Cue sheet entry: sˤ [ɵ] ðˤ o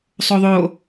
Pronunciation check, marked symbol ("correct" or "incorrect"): incorrect